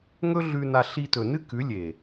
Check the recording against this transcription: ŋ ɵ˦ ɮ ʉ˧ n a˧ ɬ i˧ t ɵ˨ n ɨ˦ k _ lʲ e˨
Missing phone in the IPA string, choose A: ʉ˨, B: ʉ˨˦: B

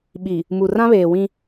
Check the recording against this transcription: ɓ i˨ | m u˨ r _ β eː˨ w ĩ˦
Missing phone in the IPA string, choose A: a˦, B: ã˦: B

